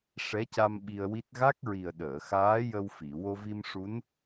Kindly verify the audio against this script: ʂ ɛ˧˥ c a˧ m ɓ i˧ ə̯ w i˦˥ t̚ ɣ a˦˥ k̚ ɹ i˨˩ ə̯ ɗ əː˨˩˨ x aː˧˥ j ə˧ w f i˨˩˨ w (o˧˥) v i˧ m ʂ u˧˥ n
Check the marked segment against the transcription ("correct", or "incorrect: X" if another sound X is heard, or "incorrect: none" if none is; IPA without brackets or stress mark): incorrect: o˧